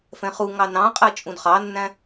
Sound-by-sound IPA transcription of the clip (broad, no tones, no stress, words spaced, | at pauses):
fɛ̃χuŋɑ nɑ̃qʼɜ t͡ʃʼũdχɑnːæ̃